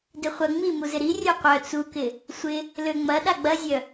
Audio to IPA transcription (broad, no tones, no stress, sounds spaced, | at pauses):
d ɪ χʷ ɐ ŋ͡m i m u z ɪ ɾ i rʲ œ qʷ œ t͡s u k ɪ | sʷ ɪ | l ø ŋ͡m ɐ ɗ a ɡ͡b ɐ zʲ œ